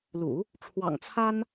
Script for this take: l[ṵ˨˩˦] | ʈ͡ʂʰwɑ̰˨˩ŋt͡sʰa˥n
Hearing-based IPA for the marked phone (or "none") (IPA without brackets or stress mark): ṵ˨˩˦